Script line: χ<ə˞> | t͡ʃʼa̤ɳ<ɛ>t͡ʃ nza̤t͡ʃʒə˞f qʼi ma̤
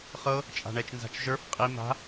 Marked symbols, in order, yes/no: no, yes

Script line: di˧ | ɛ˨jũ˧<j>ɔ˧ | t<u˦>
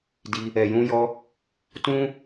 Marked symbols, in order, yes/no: yes, no

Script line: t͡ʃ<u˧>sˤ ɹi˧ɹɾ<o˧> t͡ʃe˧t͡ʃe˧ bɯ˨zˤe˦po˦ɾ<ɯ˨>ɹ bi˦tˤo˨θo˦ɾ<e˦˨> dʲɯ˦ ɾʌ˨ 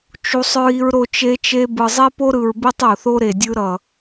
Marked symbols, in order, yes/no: yes, yes, yes, no

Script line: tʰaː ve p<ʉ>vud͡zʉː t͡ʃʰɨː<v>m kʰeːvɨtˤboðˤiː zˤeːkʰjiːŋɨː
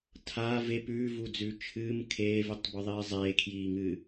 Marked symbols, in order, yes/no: no, no

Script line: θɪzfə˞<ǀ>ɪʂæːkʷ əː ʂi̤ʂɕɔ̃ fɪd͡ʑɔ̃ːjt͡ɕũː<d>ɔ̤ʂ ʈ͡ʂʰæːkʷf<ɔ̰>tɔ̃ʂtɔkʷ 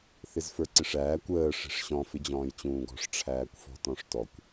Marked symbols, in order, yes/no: yes, no, no

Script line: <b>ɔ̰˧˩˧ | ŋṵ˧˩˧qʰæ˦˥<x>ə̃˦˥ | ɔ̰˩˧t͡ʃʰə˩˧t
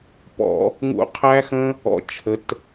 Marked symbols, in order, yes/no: no, yes

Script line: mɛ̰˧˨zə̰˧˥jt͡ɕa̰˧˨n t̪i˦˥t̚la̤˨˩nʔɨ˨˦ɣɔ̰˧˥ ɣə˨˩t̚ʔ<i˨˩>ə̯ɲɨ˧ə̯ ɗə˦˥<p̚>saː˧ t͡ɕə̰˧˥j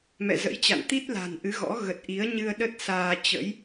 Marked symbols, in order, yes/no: no, no

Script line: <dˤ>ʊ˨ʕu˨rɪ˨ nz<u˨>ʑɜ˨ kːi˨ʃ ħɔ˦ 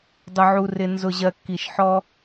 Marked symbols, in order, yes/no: yes, no

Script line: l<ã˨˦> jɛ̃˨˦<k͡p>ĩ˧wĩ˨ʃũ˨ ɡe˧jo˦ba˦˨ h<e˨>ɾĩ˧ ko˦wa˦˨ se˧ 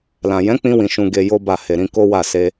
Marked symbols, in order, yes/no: no, yes, yes

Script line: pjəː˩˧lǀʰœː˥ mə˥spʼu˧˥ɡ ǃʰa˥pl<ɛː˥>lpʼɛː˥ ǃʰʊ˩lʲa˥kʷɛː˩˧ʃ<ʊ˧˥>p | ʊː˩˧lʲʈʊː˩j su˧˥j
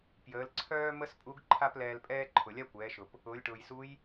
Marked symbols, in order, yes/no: no, no

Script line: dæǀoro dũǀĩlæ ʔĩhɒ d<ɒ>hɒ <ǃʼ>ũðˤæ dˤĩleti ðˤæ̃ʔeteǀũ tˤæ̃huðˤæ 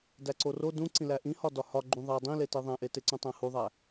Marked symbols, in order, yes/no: yes, no

